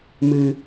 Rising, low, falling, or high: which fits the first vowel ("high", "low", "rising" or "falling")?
low